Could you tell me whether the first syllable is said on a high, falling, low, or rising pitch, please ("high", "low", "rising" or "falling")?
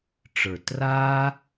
low